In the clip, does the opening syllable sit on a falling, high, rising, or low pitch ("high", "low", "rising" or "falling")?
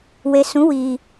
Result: low